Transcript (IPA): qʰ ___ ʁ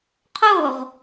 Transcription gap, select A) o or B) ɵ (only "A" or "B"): A